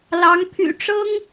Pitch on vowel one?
rising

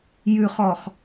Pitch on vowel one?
low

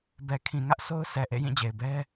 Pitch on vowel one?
low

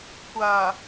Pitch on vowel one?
low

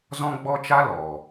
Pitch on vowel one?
high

